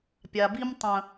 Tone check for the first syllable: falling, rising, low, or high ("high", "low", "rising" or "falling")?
low